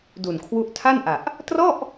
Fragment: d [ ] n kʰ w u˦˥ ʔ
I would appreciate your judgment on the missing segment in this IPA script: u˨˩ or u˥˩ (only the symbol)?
u˨˩